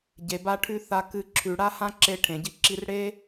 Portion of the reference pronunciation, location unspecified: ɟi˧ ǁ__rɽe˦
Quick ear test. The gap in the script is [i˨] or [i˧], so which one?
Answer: i˧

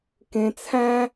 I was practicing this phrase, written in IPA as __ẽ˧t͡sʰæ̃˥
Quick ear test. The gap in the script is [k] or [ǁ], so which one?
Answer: k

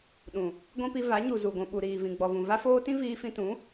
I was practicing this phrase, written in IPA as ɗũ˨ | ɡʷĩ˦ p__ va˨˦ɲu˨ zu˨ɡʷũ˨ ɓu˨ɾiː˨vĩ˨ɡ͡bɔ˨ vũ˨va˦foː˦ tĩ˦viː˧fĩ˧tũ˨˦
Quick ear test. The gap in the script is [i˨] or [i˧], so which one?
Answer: i˧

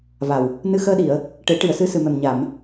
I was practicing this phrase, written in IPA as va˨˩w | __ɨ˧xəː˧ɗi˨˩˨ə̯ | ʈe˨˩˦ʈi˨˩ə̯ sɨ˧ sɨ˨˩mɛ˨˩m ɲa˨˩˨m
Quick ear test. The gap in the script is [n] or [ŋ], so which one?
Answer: n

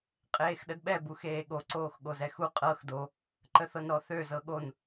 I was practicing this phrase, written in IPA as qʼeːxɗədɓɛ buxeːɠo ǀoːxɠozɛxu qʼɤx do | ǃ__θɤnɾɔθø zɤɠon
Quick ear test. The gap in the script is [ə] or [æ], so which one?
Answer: ə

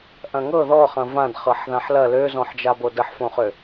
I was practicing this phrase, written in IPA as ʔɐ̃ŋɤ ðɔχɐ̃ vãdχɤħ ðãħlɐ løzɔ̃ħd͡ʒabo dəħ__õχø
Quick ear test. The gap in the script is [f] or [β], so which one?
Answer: f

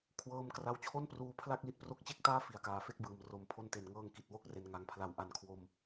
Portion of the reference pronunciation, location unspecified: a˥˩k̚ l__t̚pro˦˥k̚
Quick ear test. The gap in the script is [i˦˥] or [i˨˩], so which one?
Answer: i˦˥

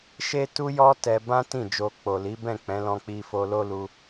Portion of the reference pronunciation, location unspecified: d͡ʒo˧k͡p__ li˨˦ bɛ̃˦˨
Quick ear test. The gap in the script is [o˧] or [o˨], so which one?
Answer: o˨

